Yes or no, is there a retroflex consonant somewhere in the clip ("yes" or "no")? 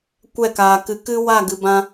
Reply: no